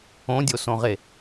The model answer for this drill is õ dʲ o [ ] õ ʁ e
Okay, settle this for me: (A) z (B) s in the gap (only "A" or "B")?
B